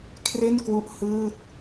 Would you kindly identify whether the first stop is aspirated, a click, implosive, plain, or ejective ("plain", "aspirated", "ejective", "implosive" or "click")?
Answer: aspirated